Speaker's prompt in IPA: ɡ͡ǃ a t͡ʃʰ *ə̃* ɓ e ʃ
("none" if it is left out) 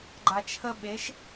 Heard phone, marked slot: ə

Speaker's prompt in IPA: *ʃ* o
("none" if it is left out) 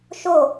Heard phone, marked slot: ʃ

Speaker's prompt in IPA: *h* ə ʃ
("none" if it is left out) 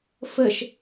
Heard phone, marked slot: f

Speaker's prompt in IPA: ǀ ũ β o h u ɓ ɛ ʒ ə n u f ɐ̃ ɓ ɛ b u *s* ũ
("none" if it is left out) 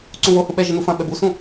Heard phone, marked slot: s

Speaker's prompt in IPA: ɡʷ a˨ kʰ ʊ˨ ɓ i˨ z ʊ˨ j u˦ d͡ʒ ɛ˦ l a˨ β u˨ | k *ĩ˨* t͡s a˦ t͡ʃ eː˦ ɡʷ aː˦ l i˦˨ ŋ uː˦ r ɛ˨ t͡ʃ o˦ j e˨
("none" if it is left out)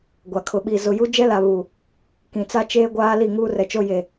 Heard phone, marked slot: ĩ˨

